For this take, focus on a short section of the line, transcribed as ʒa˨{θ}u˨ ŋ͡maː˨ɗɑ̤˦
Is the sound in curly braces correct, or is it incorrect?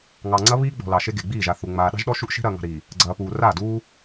correct